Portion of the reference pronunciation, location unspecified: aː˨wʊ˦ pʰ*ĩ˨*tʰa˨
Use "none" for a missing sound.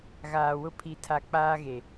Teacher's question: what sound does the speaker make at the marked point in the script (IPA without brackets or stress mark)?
i˨